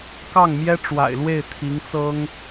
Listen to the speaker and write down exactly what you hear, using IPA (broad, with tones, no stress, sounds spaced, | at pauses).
k ɑ˥˩ ŋ m j ɛ˥ ʈ͡ʂ w a̰˨˩ ɪ̯ l w e˥˩ ɪ̯ t̪ʰ i˧˥ ŋ t͡s ɤ˥ ŋ